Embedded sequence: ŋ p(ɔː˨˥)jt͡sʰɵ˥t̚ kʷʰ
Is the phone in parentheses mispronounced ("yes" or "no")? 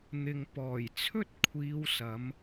yes